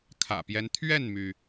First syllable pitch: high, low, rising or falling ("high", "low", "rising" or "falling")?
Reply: low